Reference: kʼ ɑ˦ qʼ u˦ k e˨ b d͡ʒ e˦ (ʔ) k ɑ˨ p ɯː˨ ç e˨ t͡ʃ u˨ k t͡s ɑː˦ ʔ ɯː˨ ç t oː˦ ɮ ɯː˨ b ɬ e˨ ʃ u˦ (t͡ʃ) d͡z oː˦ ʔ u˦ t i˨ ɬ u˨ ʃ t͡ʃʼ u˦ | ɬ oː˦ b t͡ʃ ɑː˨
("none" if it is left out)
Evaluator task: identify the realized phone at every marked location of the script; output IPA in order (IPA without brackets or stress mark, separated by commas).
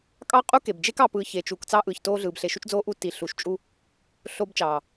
none, t͡ʃ